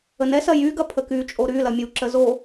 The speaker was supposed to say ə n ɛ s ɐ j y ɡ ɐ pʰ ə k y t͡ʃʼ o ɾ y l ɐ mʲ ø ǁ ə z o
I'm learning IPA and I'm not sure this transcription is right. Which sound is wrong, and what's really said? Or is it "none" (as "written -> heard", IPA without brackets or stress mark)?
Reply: ø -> u